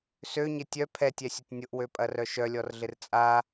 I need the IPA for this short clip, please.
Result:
s ø ɲ ɪ tʲ œ pʰ ɛ tʲ ɛ sʲ ʊ tʲ nʲ ʊ ʔ w ø pʼ ɐ r œ ʃ œ lʲ ɔ r ɮ ɪ r t͡sʼ a

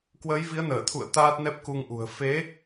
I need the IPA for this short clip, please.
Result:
k w əː˨˦ j v i˨˦ ə̯ n əː˧˩ t̪ʰ ṵ˧˨ ə̯ t̪ aː˦˥ t̚ n ɛ˦˥ p̚ k u˧ ŋ ʔ ṳ˨˩ ə̯ f e˨˦

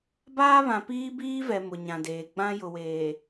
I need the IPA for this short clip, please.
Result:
b aː˦ β ã˨ p iː˦ b iː˦ v ɛ˨ m ʊ˨ ɲ ã˨ d eː˨ ɡ͡b ã˦ j ʊ˨ w eː˨

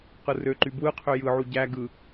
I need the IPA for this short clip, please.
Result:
q ɯ r ø ǃ y b w ɯ qʰ ø j ɯ ʕ u ɟ æ ɡ ɯ

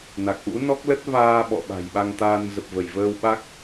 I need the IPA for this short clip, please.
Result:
n a˨˩ k̚ ʔ ṵ˧˥ n ɔ˦˥ k̚ l ə˦˥ t̚ v aː˧ ɓ ɔ̰˧˨ ɓ a̤˨˩ j ɓ a˧ ŋ t̪ aː˧ n z ə˨˩ p̚ v ə˧˩ j v əː˧ w ɓ a˦˥ k̚

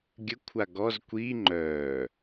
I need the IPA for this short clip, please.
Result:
ɡʲ ə kʷʰ a ɡ ɔ z kʷ i ŋ͡ǃ œ

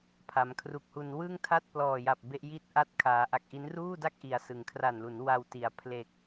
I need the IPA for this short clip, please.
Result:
pʰ a˩˦ m kʰ r u˨˩ k̚ h u˧ n w ɯ˥˩ ŋ tʰ a˥˩ t̚ p l ɔː˨˩ j a˨˩ p̚ b e˦˥ ʔ j i˥˩ t̚ ʔ a˥˩ t̚ kʰ aː˩˦ ʔ a˨˩ k̚ ʔ i˦˥ n r uː˥˩ d a˥˩ k̚ ʔ i˩˦ a̯ s ɯ˩˦ ŋ kʰ r a˨˩ n l u˩˦ n w a˧ w t i˩˦ a̯ pʰ l e˨˩ k̚

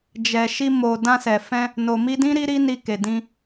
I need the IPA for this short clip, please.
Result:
d͡ʒ ɛ˨ ʃ i˧ m o˨ d ã˧ s ɛ˨ f ɛ̃˧ | n o˨ m i˧ d ĩ˦ ɾ i˦ ɾ i˦ n i˧ k e˨ d ĩ˧

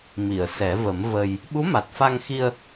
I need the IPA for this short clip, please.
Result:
m i˨˩˨ ə̯ s ɛ˨˩˦ v ə˨˩˦ m v ə˧ j | ɓ u˧˥ m a˨˩ t̚ f a˧ ŋ x i˧ ə̯

